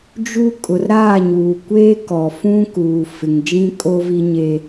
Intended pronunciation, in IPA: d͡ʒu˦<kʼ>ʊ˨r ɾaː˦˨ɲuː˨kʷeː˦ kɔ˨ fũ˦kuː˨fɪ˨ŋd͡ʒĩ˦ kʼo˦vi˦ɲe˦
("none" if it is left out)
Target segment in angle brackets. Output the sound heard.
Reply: kʼ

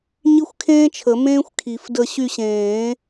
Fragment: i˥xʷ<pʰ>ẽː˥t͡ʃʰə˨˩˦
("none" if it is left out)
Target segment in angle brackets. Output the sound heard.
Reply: kʰ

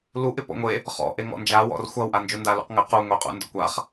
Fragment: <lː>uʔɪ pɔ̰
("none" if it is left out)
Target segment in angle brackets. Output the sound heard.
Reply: l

